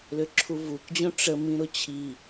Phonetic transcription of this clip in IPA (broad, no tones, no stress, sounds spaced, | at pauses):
l ʏ ǁʰ u v u k d͡ʑ õ ʈ͡ʂ ə m ĩ ɾ ʊ t͡ɕʰ i